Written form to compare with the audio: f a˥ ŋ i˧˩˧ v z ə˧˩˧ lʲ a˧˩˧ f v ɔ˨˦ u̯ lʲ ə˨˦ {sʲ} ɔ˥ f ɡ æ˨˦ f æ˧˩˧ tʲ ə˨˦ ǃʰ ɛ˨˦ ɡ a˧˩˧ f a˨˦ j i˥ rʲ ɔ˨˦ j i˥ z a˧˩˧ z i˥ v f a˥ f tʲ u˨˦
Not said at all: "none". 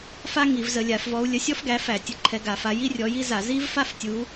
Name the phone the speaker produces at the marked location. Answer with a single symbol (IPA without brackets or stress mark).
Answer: sʲ